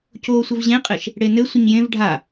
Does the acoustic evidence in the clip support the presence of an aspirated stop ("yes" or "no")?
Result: no